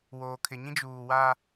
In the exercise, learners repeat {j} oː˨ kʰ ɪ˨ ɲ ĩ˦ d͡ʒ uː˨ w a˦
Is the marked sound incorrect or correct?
incorrect: w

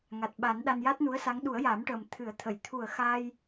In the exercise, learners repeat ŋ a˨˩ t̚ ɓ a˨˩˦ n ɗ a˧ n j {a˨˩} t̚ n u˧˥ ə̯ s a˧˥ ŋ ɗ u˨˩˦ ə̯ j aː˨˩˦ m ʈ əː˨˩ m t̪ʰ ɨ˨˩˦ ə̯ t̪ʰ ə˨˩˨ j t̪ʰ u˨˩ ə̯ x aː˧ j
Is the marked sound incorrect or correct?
incorrect: a˦˥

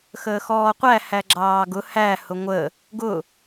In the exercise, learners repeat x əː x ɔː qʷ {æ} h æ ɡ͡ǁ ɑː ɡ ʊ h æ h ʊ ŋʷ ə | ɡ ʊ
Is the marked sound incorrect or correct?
correct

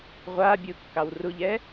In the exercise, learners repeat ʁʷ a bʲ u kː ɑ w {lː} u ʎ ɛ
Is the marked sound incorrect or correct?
incorrect: r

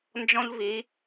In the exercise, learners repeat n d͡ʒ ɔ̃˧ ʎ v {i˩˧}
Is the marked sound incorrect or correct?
correct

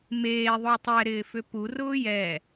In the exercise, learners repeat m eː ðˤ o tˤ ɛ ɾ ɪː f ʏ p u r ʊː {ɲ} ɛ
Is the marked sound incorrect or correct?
incorrect: j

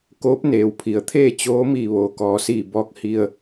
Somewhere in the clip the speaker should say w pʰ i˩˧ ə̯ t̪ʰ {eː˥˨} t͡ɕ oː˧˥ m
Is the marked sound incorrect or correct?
correct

